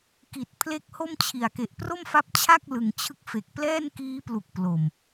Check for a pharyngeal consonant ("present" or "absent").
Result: absent